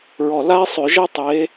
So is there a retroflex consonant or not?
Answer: no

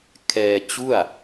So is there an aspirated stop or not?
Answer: yes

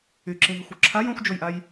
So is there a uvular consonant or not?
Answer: no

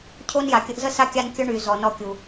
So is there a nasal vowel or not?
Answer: no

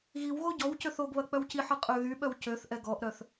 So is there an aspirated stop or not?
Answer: no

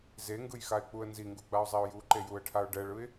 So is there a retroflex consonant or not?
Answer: yes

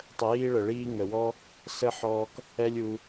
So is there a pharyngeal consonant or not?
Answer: yes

